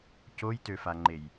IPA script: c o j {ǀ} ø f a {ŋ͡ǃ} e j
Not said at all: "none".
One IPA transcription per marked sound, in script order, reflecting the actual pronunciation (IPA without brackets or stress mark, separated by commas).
t, ŋ͡ǃ